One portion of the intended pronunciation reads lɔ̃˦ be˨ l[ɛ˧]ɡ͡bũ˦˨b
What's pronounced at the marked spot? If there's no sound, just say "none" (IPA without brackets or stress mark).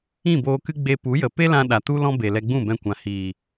ɛ˧